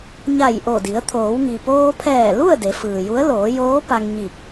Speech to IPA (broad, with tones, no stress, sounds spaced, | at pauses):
ɲ a˧˩ j ʔ o˧˩ d i˩˧ ə̯ t̪ʰ oː˩˧ w ŋ i˩ p oː˧ pʰ ɛː˧˩ l u˥˨ ə̯ d e˩˧ f ɯː˩ j u˧˥ ə̯ l oː˩˧ j oː˧˥ p a˧ ŋ ɲ i˧˩ k̚